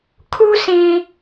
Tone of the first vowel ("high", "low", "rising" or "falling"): high